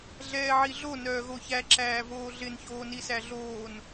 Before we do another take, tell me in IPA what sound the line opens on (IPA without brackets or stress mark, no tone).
ɮ